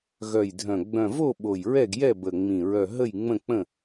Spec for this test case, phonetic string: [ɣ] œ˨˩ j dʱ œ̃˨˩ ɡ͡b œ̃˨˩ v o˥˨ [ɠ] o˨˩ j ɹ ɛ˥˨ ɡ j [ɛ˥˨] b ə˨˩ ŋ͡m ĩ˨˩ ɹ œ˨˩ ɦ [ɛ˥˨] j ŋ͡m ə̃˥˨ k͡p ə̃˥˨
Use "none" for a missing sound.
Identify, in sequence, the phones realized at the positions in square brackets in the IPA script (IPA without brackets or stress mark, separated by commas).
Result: ɣ, ɓ, ɛ˥˨, ə˥˨